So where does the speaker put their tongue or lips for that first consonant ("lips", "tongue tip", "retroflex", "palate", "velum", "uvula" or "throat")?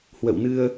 throat